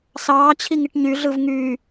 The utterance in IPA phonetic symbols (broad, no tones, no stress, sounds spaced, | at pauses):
s ɑː t͡ɕʰ i ŋ i ʈ ɲ y ɮ ɯ v ŋ y